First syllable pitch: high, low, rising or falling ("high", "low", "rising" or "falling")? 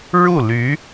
falling